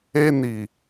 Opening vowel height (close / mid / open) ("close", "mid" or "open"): mid